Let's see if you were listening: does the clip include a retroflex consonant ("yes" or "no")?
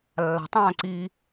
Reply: no